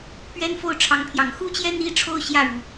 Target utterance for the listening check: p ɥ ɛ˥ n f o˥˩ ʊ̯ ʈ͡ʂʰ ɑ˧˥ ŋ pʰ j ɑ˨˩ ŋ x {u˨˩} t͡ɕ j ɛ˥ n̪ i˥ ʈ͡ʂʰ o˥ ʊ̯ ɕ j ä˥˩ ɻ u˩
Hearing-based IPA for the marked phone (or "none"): u˥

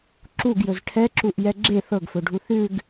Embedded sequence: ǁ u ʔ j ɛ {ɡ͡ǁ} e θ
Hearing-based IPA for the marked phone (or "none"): ɡ͡ǁ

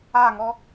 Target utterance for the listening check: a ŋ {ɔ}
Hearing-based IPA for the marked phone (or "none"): ɔ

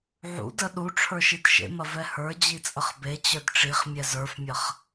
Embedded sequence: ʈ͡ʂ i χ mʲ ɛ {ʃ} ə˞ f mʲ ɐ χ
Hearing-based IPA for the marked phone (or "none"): z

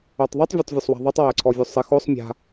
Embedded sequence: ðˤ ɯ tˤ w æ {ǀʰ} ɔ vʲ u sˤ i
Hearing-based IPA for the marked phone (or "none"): ǀʰ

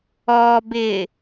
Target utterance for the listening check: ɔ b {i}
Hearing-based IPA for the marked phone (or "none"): ɪ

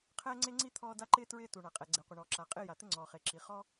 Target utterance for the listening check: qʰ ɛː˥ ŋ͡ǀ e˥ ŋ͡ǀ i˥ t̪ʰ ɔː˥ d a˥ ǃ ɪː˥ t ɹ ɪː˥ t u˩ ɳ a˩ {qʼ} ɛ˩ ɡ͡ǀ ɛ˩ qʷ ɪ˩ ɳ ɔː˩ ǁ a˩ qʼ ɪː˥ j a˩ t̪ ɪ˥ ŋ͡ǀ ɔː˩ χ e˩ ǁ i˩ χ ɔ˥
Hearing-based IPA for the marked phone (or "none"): qʼ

